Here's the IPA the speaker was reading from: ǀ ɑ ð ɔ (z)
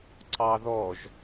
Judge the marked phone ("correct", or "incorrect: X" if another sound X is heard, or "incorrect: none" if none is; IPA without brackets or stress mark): incorrect: ʒ